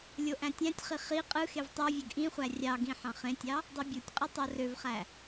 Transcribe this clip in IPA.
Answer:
lʲoʔæ̃tʲæ̃tʲχi χi qʼɯxev tˤovʲøɡ ʔĩχʷæ rʲɑɡĩ ħɑ̃χẽtʲɑ | dˤibʲutʲqʼɯ tˤorøvχæ

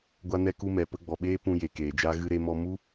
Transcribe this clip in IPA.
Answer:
ɡʷa˧ nɛ˧ku˧mɛ˨ pə˧ɡ͡bɔ˨ɓeː˦ pũ˧je˨keː˨d͡ʒa˦ ɣɨ˧ɾe˧mɔ˧ mu˦

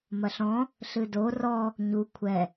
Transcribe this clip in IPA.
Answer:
mɐɬɔ̃ | ɬɨdo rɔ | ɲu kʷʰɛ

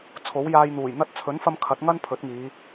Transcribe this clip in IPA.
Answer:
t͡sʰo˨˥wjaː˧jn̪uː˨˩jn̪ɐ˥t̚ t͡sʰɵ˨˥nfɐ˧m kʰɐ˨˥t̚ŋɐ˥n pʰɵ˨˥t̚ŋiː˨˧

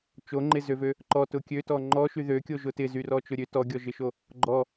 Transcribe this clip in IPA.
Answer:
t͡ʃoŋ͡ǃɪzøvø | ǃɔtʊ kʲøtɔ ŋ͡ǃɔʃy ðøkʲoʒʊ tɪzyrɔt͡ʃʊ ɾʲø tɔɡʲɔʒɪʃo | ɡ͡ǃɔ

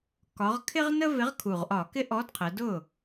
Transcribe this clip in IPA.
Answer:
kɒ˩˧ʁkʰɪ˦ʁnə˦ vɪ˨˥ʁkʰu˨˩ʁʔɒ˧˩˧ kɪ˦ʔɔ˨˥dqʰə˩˧dʊ˥˩

